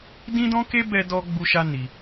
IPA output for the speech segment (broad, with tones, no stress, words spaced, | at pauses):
dĩ˦dɔ̃˦ke˦ bɛ˦dɔ˦ ɡ͡bu˦ʃa˦ni˧